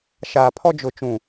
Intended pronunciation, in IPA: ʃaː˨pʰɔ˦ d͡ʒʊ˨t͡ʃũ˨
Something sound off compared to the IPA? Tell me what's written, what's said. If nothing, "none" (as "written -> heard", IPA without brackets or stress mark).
none